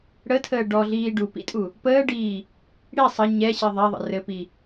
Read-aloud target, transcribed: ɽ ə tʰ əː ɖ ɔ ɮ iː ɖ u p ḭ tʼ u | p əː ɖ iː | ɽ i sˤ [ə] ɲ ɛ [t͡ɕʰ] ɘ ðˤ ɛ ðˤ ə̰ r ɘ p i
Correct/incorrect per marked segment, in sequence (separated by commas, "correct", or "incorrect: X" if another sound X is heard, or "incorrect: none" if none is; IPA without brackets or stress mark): correct, incorrect: ɕ